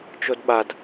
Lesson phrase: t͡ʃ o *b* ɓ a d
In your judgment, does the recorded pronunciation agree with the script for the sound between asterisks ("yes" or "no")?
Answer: no